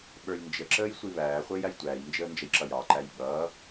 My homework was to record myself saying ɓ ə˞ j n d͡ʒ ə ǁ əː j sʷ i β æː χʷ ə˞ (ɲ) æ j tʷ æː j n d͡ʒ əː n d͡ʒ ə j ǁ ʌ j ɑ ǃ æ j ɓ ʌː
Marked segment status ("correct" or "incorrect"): incorrect